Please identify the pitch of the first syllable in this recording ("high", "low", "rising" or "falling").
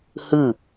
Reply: falling